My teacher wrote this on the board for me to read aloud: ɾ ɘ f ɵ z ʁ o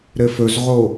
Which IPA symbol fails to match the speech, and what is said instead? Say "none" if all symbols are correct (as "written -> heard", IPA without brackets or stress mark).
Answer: none